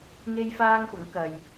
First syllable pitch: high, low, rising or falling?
high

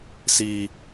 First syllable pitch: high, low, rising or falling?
high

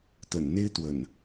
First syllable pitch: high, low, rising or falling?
low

